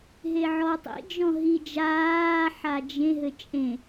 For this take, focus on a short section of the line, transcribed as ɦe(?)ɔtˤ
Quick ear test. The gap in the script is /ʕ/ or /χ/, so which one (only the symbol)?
ʕ